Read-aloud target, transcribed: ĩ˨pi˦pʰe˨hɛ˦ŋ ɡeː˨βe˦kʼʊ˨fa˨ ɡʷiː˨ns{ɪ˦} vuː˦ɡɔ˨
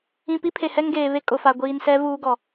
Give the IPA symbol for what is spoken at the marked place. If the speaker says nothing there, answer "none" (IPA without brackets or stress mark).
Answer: ɛ˦